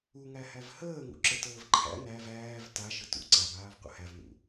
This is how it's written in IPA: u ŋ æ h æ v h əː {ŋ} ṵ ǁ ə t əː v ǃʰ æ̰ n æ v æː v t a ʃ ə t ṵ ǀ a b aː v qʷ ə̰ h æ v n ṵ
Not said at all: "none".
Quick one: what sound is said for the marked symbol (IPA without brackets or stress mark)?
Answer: ŋ